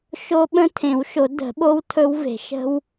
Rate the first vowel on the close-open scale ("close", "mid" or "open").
mid